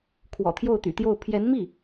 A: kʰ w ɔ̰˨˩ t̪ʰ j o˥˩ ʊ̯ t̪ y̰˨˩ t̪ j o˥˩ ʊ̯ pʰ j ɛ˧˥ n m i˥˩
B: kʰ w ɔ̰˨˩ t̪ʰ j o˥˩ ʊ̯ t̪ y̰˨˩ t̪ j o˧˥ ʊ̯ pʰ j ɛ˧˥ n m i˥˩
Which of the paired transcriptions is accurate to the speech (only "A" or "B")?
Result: A